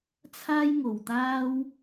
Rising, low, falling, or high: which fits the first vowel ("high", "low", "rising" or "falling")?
high